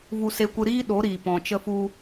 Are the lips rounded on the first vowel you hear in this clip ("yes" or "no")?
yes